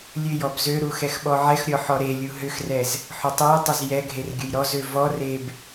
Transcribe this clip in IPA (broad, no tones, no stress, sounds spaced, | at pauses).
lʲ ø j ɔ b z ø ɾ u x ɛ x ɓ ɔ ʕ ɛ x ɾʲ ɔ ħ ɔ ɾ e lʲ u ɦ ʏ x r ɛ z | ħ ʊ tˤ ɛ j tˤ ʏ z j ɛ ɡʱ e r ɡʲ ʊ j ɾ ɔ z ø v ɔ r e b